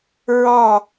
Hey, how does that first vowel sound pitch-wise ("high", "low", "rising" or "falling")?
falling